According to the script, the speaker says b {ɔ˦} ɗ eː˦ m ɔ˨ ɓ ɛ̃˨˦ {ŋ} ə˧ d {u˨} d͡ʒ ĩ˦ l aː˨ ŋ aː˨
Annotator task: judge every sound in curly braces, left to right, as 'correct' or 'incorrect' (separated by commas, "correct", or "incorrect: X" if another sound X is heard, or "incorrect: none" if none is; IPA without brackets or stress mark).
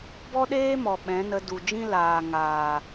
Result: correct, incorrect: n, correct